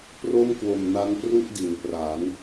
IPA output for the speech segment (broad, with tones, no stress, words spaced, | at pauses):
pro˥˩mkwo˨˩mna˦˥n pru˥˩ʔdi˩˦npra˩˦n